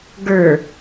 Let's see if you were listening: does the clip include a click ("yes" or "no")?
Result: no